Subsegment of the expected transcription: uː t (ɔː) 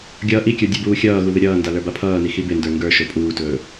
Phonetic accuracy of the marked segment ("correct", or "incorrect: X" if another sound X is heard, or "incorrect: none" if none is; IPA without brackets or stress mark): incorrect: ɵː